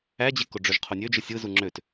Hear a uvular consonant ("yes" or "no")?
yes